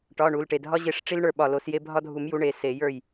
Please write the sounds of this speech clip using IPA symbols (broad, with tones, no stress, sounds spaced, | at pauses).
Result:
ʈ ɒ˩˧˩ ɳ u˩˧˩ l ʈ e˧˩ dʱ ɒ˦ ʑ e˧˩ ʂ ʈ͡ʂ i˦ l ɳ ə˞˧˩ ɓ ɒ˧˩ l o˨˩˦ s j e˦ bʱ ɒ˦ dʱ u˨˩˦ m j u˨˥ ɳ e˩˧˩ s e˨˩˦ j ə˞˥˩ j